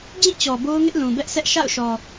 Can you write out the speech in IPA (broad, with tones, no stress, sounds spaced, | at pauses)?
d͡ʑ ĩ˦˨ t͡ɕ ɔ˨ b o˦ ʊ̯ ŋ ɪ˦ ʔ l ũ˨ b ɛ˦ ʔ s ɛ˦ ʔ ʃ a̰˦˨ ʊ̯ ʃ ɔ˨